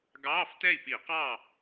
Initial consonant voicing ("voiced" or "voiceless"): voiced